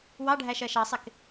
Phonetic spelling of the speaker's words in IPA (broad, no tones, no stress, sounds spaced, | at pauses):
w ɑ ɖʱ æ ʃ ɜ ʃ ɑ sˤ ɪ k